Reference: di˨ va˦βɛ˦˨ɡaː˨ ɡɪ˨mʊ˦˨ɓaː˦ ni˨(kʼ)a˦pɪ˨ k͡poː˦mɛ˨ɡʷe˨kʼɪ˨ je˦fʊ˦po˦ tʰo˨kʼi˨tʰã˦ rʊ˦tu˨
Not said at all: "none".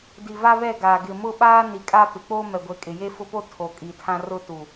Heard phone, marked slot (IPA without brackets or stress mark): kʼ